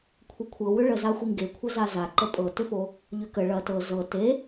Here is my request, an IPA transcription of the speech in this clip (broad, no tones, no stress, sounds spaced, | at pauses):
kʷʰ ɤ kʷʰ ɤ w ʏ ɭ ə z a xʷ i ŋ ɡ e kʷʰ ə z a z a ǃ ə pʼ ɤ t ʏ f o | ʎ ʏ k ə ɭ ɐ t ɤ z ɤ t e